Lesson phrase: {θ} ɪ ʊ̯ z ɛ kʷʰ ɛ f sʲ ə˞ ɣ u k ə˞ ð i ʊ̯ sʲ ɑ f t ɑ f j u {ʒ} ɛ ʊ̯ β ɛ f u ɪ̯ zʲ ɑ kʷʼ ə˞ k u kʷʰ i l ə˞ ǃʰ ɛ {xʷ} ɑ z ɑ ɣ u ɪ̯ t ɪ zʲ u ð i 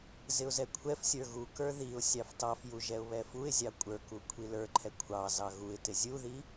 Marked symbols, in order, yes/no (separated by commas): no, yes, no